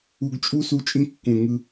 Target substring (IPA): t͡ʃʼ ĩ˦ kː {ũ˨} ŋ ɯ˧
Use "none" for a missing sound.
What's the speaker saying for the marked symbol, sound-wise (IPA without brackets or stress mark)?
ũ˨